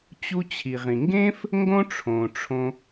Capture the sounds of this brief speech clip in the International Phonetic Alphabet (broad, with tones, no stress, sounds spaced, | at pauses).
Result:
t͡ɕ u˧ t͡ɕʰ i˩ ʁ ĩ˩ ŋ ɡ ẽ˥ f | ŋ ɡ õ˥ ʈ͡ʂʰ õ˩ ʈ͡ʂʰ õ˧